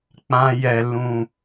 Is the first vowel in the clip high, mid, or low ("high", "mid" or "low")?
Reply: low